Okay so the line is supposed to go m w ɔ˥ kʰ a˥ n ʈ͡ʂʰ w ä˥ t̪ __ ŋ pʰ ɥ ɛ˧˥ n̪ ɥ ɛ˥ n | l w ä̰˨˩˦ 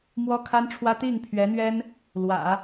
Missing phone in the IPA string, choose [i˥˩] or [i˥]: i˥˩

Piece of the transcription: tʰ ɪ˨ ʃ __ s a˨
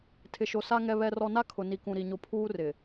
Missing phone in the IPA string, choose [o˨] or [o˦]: o˨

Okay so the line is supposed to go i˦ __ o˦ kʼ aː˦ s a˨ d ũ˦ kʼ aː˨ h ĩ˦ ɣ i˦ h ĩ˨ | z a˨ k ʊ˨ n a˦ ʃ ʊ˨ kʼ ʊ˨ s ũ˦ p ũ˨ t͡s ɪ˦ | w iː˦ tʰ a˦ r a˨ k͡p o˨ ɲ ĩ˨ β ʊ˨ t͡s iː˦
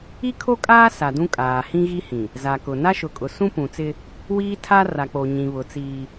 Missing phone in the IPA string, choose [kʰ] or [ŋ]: kʰ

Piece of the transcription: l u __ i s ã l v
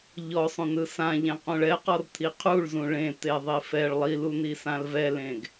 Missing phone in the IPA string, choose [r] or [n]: n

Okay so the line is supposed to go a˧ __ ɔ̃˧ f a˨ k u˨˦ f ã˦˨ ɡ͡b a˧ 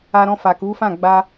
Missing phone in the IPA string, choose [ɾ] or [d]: ɾ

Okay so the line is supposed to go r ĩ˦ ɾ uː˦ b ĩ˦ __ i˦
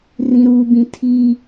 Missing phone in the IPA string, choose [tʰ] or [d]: tʰ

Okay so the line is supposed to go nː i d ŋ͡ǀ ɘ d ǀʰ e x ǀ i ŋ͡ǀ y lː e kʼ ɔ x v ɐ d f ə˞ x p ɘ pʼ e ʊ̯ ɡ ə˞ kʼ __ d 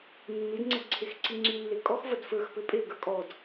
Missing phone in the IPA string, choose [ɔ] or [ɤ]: ɔ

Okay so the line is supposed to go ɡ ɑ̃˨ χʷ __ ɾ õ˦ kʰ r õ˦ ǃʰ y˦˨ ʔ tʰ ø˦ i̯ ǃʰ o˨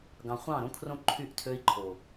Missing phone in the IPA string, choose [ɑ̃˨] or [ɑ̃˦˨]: ɑ̃˦˨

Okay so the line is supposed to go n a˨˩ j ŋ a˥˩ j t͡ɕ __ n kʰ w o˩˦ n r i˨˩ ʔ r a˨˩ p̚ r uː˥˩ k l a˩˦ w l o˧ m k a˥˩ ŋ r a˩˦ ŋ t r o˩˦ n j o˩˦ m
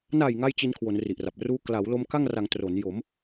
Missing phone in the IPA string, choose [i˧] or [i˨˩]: i˧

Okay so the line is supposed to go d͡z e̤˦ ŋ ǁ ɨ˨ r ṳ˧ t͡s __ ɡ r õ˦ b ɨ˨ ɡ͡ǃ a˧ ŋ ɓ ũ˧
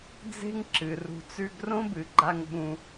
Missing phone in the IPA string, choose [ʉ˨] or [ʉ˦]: ʉ˦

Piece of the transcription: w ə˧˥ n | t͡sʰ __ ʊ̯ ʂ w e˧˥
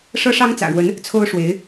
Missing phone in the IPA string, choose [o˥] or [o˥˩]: o˥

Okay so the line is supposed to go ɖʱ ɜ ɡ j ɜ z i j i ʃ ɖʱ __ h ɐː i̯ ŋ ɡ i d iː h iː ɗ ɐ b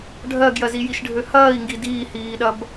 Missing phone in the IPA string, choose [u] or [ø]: ø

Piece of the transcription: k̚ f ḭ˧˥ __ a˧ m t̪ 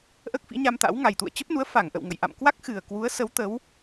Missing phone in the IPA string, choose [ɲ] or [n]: ɲ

